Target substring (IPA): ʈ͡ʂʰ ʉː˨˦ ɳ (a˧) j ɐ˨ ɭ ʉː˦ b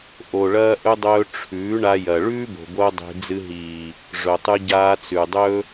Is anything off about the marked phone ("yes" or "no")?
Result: no